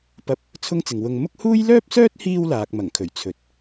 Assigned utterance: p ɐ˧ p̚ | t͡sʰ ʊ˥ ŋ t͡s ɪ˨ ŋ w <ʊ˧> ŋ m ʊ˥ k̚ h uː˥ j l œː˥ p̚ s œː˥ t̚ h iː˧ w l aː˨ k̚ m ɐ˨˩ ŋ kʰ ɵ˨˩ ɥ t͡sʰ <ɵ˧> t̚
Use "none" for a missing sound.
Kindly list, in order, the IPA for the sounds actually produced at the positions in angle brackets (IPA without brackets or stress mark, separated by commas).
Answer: ʊ˧, ɵ˨˥